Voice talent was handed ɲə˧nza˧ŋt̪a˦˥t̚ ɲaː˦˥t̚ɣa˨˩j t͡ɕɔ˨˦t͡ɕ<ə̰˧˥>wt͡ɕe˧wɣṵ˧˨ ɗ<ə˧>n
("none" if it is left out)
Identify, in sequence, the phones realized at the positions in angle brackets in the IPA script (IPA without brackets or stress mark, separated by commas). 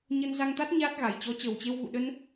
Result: ə˨˩, ə˧